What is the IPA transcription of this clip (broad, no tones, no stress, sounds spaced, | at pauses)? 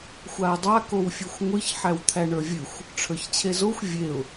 xʷ a ɪ̯ dˤ a k o w fʲ e xʷ ŋʷ ɨ ç ħ æ w t̪ʰ æ ɳ ə˞ vʲ ɨ xʷ | ʈ͡ʂʰ ə˞ ç t͡ɕʰ e z o xʷ vʲ e ʊ̯